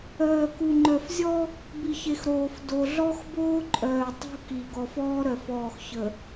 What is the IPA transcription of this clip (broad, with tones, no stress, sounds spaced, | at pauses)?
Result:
œː˨ k u˨ ŋ͡ǃ œ˨ f zʲ ɔ˦ | b i˨ ç e˨ x ɾ oː˨ f d o˨ ɮ ɔ˦ x b oː˦ ǃʼ œː˨ tˤ ṳ˦ k i˨ ɡ ɔ˨ f ɔː˦ ɾ œ˨ f ɔː˨ x ç ə˨